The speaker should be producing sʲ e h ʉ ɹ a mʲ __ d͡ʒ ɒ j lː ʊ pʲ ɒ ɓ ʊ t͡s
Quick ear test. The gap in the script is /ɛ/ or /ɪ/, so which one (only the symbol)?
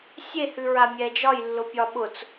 ɛ